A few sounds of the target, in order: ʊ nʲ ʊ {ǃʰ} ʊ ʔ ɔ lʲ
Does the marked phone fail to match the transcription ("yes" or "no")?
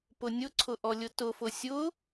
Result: yes